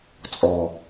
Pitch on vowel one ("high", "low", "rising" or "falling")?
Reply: low